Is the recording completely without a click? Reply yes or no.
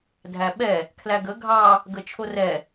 yes